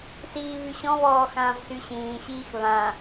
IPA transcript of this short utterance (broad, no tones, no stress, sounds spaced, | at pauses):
s iː β y ɕ ɔ̃ β ɔː x ãː v s y ɕ ĩː ɕ iː x β ã